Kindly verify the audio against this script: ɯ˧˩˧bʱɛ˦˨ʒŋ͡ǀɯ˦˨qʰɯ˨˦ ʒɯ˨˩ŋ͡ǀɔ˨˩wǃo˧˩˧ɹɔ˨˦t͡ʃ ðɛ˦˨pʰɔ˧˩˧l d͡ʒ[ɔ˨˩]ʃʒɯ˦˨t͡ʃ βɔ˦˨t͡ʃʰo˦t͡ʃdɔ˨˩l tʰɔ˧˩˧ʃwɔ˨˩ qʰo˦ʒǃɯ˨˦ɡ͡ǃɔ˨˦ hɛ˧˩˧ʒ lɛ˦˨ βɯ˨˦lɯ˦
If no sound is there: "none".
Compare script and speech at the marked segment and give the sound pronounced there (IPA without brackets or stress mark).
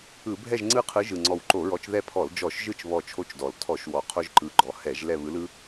ɔ˧˩˧